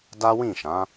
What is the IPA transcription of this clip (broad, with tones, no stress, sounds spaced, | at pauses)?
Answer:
d a˦ w ĩ˦˨ ʃ ã˨˦